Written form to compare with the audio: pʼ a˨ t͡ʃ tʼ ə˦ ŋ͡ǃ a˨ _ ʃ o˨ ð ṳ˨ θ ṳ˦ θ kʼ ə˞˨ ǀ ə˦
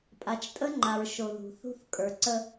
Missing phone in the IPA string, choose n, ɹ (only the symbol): ɹ